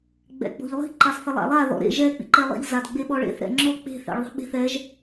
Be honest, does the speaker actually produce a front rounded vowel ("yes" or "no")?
no